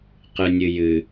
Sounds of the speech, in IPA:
qɨnʲɨjɨ

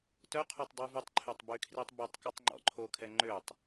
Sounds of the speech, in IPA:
tœqʰotˤ dˤʉvʉtˤǃʰøtˤ bykʰritˤbotˤkutˤ ŋ͡ǃɔ̰ǃʰokʰɛ ŋ͡ǃøtˤ

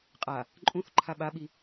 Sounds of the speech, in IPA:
qʼa | ǃʼũθ ǃʰaɓaɓi

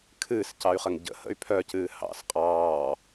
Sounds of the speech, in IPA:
kʰɨːscɑy̯χəŋ ɟə̰hə̰y̯ pʰœcɨː hɑ̰s qʼɑː

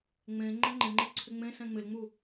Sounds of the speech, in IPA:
ŋ͡mẽ ŋ͡ǃɛ̃ŋ͡ǃɪŋ͡ǃe ǀʰɪŋ͡mẽsɛ̃ ŋ͡mɪlŋ͡mu

